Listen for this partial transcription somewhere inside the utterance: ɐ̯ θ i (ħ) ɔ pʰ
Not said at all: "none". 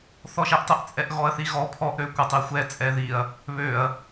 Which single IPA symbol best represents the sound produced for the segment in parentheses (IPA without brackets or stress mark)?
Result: ɣ